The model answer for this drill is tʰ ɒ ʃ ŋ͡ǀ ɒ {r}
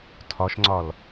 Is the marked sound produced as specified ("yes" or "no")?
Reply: no